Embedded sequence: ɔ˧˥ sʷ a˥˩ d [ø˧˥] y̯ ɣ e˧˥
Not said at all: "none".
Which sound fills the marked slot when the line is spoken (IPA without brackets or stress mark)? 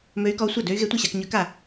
ø˧˥